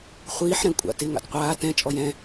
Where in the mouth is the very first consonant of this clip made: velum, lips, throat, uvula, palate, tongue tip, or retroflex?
uvula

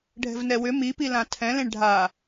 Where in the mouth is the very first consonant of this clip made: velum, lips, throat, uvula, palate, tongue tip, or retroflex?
retroflex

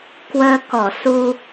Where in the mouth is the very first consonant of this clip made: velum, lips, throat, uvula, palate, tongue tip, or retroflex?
velum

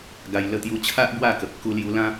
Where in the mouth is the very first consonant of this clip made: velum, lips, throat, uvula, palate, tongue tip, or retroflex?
velum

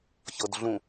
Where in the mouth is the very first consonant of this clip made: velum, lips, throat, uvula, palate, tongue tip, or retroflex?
palate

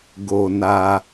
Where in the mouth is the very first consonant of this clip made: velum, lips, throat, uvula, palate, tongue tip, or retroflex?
velum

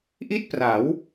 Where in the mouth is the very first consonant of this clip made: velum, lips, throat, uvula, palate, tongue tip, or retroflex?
throat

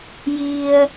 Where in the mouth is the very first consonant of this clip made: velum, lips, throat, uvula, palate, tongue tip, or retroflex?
palate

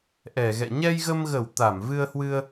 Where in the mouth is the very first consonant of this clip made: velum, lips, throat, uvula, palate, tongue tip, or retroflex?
throat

